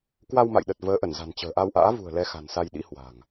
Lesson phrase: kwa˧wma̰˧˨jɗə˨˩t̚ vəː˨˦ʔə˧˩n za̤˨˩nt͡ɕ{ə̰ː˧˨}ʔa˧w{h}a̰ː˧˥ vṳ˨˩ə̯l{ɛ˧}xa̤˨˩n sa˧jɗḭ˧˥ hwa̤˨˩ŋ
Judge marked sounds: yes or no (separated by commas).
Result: no, no, yes